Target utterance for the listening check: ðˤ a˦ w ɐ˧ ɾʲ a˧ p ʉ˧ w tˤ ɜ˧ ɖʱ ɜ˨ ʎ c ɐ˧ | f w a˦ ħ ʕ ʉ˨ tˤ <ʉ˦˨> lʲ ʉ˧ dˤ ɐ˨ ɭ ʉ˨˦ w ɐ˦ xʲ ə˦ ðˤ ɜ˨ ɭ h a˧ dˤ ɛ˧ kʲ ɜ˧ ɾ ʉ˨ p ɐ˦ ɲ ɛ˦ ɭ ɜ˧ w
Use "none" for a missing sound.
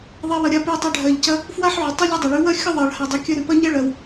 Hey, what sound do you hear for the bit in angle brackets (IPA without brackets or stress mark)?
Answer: ʉ˦